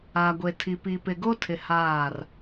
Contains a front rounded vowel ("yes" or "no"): no